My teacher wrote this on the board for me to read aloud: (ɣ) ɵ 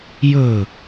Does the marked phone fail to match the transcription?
yes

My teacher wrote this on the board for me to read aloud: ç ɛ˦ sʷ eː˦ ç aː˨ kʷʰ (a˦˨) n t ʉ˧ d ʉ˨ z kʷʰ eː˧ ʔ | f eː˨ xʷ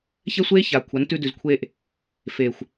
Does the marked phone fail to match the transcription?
yes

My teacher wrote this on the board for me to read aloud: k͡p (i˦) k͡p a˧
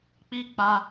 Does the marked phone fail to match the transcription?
no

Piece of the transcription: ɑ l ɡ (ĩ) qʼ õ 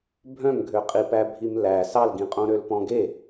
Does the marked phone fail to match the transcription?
no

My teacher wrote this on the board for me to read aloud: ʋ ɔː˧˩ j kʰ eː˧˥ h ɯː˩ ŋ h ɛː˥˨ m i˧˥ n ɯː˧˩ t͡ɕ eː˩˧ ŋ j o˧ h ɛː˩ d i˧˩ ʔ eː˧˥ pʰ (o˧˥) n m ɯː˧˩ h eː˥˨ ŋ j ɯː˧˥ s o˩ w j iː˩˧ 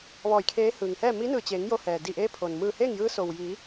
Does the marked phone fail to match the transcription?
yes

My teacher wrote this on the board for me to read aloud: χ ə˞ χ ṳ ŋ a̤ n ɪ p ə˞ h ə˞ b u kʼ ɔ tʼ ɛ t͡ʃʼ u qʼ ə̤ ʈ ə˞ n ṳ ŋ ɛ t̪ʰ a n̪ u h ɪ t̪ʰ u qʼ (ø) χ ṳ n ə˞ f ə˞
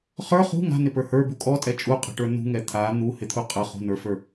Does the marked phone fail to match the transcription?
yes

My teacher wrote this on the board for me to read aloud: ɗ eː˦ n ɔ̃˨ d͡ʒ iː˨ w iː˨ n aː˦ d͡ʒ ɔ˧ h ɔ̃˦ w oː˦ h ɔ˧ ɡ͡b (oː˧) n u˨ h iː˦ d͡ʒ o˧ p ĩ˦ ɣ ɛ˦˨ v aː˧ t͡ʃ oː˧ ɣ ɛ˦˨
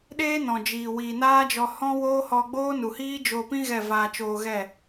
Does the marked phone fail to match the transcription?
yes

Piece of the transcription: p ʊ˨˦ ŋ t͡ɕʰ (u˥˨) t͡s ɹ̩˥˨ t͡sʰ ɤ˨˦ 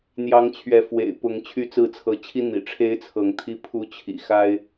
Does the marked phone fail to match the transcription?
yes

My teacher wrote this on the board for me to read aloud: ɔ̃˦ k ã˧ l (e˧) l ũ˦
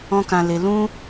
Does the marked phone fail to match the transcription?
no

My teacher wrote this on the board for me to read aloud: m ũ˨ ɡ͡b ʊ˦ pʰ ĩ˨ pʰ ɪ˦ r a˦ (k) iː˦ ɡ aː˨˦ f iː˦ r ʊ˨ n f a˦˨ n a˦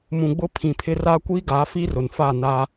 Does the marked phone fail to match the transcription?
yes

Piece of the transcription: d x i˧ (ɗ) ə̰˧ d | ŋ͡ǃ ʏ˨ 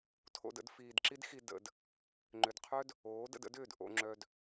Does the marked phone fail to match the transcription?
yes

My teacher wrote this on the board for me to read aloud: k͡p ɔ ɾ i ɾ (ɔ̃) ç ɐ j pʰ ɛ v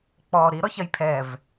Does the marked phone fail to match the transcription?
yes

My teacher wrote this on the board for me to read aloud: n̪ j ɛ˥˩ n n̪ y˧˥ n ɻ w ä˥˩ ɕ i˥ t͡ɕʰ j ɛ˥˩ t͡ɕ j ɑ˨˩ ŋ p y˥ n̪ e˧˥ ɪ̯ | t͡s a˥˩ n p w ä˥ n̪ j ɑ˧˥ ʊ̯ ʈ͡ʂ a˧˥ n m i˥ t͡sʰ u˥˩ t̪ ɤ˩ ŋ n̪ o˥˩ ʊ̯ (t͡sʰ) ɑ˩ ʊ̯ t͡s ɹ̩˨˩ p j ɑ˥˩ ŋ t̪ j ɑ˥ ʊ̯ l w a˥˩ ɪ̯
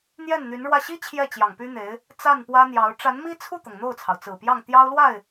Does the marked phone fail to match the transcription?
no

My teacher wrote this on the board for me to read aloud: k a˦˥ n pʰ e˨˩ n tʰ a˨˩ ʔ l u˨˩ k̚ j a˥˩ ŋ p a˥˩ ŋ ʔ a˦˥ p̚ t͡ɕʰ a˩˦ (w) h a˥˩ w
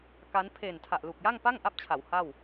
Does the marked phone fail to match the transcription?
no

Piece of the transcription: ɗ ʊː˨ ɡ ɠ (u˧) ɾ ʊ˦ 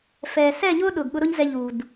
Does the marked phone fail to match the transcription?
yes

